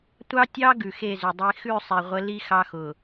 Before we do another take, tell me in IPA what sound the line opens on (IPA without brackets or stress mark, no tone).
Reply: tʷ